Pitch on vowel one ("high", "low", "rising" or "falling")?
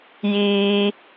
high